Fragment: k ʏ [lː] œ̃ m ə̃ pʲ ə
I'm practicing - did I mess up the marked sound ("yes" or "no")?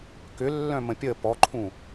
no